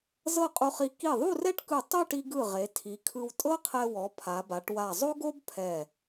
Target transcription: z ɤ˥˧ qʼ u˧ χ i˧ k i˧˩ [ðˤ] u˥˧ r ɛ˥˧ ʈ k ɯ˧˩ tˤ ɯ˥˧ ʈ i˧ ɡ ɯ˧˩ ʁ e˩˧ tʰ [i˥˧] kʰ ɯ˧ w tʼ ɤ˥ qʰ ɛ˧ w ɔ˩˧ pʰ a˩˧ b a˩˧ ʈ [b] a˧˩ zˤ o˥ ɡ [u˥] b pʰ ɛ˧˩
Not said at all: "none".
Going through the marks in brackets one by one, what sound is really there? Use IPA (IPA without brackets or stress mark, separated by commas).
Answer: ðˤ, i˩˧, w, o˥